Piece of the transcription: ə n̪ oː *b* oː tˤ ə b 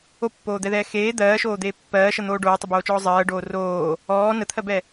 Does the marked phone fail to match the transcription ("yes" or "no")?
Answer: yes